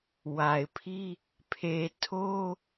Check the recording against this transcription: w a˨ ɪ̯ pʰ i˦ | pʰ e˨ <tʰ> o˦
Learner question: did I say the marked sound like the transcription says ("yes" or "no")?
yes